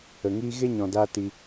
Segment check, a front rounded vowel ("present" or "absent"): absent